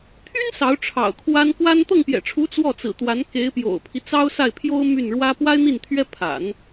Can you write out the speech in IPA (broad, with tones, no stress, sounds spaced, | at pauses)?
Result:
t̪ʰ y˥ n s ɑ˧˥ ʊ̯ ʈ͡ʂʰ ɑ̰˨˩ ʊ̯ kʰ w a˥ n k w a˥ n t̪ ɤ˥˩ ŋ p j ɛ̰˨˩ ʈ͡ʂʰ u˧˥ t͡s w ɔ˥˩ t͡s ɹ̩˨˩ t̪ w a˧˥ n k e˧˥ ɪ̯ p j o̰˨˩ ʊ̯ pʰ i˦ t͡s ɑ˥ ʊ̯ s a˥˩ ɪ̯ pʰ j o˥ ʊ̯ m y˥˩ n ɻ w ä˥ p w a˥ ɪ̯ n̪ i˥˩ n t̪ʰ ɥ ɛ˥ pʰ a̰˨˩˦ n